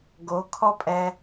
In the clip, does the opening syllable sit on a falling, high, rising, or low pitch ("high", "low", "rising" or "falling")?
rising